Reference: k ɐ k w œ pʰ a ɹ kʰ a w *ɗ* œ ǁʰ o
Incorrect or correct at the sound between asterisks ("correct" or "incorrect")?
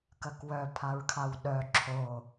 correct